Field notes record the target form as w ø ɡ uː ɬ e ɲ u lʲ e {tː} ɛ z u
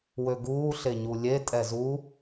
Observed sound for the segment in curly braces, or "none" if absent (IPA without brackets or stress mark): tʼ